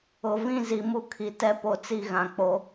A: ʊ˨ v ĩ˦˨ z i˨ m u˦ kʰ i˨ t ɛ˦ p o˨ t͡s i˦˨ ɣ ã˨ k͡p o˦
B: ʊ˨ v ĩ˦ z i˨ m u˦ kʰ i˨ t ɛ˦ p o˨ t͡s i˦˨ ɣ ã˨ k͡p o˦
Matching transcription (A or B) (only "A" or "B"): A